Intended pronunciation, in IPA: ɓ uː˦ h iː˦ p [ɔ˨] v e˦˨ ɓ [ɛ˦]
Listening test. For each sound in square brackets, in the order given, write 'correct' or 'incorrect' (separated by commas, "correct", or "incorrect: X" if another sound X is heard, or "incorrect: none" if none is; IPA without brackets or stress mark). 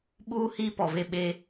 correct, incorrect: e˦